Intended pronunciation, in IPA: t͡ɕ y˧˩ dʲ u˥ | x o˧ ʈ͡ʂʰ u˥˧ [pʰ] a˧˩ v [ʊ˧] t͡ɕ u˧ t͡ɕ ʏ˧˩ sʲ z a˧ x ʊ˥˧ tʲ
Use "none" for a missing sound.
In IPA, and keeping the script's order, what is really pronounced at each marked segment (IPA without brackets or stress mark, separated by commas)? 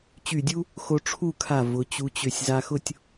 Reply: kʰ, ʊ˩˧